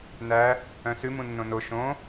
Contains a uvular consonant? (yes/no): no